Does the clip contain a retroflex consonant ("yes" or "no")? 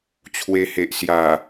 no